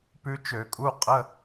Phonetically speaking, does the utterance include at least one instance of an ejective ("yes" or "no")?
yes